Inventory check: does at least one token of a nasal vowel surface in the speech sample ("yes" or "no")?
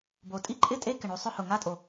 no